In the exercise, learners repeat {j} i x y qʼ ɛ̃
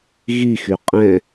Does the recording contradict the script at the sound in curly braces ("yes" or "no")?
yes